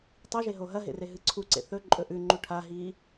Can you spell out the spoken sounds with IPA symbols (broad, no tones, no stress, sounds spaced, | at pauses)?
tˤ i ʒ e ɦ o ɦ ɐ ɦ ḛ r e ɦ ɨ ǀʰ u ǀ ḛ θ ɵ ǃʼ ɵ ʔ ʉ ŋ͡ǃ u ʈʰ a ɦ i